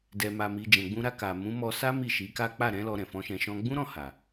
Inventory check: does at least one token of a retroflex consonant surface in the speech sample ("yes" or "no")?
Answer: no